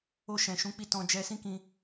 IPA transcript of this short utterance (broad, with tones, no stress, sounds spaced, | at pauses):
o˧ ʃ ɛ̃˨ ʃ ũ˨˦ k͡p i˧ t ɔ̃˧ d͡ʒ ɛ˧ s ĩ˦ k ĩ˧